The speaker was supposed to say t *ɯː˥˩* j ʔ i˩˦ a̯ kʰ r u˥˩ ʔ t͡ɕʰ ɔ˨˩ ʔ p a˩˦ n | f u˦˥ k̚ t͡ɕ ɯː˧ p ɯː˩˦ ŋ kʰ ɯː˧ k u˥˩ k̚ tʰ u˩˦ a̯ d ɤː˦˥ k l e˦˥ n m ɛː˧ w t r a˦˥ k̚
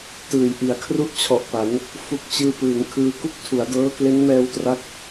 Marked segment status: incorrect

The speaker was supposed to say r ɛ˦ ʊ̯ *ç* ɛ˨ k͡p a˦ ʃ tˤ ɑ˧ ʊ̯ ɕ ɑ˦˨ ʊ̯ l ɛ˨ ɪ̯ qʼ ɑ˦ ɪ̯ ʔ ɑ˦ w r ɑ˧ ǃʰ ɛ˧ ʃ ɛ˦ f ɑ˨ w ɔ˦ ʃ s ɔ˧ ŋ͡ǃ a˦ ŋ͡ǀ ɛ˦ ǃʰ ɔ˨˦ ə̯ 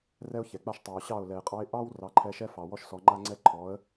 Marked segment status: correct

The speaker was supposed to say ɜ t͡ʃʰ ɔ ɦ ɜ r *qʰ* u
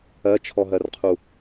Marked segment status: correct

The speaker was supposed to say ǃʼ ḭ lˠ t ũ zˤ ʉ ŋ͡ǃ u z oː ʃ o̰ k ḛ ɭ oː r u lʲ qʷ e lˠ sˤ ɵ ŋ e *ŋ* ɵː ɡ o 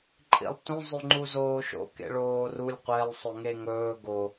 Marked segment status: correct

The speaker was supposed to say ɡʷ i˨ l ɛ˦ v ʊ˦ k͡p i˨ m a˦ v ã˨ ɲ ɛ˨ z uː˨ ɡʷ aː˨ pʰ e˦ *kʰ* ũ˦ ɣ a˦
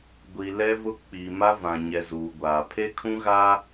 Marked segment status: correct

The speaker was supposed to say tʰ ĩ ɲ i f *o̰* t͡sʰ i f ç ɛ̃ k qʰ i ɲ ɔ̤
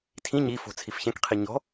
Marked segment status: incorrect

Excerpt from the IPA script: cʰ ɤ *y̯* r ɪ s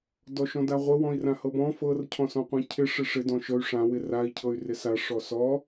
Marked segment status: correct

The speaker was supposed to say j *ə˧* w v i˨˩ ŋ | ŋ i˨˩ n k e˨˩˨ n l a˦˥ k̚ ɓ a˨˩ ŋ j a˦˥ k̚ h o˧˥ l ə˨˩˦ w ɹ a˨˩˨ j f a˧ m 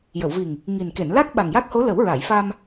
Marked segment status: incorrect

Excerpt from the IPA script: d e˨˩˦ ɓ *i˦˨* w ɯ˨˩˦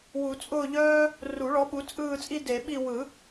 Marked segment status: correct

